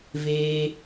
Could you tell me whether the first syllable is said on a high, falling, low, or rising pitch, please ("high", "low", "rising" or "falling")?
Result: high